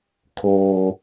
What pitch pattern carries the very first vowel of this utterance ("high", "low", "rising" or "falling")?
high